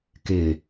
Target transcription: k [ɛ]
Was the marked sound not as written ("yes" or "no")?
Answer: yes